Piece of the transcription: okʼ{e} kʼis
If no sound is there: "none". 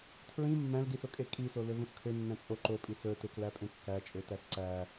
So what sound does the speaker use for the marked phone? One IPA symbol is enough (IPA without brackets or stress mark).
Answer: e